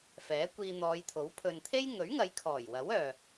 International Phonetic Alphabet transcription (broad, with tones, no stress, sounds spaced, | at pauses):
f ɛː˨˥ kʷ iː˧ n̪ ɔː˨˧ j t̪ʰ o˨˥ w pʰ ɵ˨ n t̪ʰ e˥ j ŋ ɵ˨˥ ɥ ŋ ɐ˨˧ j kʰ ɔː˨˩ j w ɐ˨˥ w œː˨